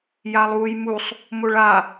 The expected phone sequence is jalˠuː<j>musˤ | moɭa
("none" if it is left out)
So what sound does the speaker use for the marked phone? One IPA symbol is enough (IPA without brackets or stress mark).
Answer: j